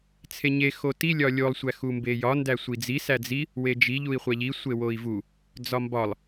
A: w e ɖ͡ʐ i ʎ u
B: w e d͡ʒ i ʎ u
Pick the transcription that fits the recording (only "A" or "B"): B